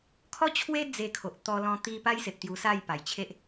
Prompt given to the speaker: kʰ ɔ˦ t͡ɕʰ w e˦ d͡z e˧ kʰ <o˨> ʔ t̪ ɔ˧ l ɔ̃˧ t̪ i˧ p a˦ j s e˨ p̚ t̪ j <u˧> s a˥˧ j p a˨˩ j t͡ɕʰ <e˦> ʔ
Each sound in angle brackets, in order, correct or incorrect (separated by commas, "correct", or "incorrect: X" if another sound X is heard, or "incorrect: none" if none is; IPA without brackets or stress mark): correct, correct, correct